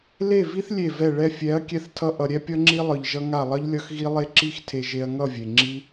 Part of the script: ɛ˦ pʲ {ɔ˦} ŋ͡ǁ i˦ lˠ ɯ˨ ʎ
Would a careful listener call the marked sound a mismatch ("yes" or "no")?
yes